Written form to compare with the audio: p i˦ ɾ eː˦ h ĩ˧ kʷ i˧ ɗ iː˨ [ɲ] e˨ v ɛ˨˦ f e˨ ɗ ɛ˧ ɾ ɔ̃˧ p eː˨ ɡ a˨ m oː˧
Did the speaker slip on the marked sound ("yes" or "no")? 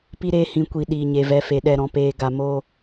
no